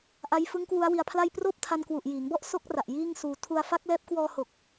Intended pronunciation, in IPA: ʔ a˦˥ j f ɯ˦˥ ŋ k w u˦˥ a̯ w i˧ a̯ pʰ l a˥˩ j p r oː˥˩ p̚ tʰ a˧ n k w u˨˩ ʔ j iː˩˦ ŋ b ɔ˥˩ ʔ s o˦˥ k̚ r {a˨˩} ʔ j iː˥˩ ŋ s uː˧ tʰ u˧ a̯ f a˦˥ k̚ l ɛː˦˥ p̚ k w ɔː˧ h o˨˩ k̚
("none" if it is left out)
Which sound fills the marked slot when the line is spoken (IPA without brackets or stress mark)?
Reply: a˨˩